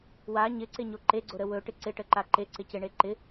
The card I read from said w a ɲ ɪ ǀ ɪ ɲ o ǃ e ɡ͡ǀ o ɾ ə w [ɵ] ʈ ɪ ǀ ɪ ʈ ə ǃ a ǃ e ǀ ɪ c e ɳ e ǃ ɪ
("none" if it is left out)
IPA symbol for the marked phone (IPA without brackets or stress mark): ɵ